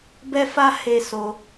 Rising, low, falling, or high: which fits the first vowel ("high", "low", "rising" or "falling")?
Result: high